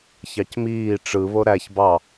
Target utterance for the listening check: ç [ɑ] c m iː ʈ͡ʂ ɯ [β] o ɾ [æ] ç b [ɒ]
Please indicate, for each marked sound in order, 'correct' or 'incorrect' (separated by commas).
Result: correct, correct, correct, incorrect